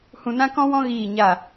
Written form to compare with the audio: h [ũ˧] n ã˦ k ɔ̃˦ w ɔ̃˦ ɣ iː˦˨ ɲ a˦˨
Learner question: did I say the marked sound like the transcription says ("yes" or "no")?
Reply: yes